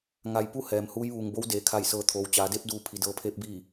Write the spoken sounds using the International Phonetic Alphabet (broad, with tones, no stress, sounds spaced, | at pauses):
ŋ a˧˩ j p u˥˨ h ɛː˩ m h uː˧˥ j ʋ uː˩ ŋ b o˧˥ w d eː˩˧ kʰ a˧˩ j s ɤː˩˧ t̪ʰ oː˩ w t͡ɕ aː˩˧ d e˧˥ p̚ d uː˧ pʰ i˩˧ d ɤː˧ pʰ eː˧˥ p̚ b iː˧˩